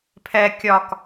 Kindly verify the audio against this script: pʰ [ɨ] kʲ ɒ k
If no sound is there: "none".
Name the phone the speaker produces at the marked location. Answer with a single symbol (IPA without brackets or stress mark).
ɛ